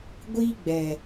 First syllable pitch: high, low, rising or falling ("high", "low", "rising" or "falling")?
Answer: high